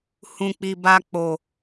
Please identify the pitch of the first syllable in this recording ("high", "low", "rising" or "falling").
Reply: low